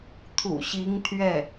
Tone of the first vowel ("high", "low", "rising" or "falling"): low